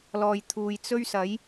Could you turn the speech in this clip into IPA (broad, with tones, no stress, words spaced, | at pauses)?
lɔː˨jt̪ʰuː˨jt͡sɵ˥ɥsɐ˨˥j